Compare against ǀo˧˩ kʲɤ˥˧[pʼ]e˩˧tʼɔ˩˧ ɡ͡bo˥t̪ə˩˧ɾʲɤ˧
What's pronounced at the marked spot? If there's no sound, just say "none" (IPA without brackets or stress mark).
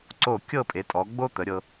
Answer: pʼ